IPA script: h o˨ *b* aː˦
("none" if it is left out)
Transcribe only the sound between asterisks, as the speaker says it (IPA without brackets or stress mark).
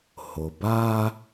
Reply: b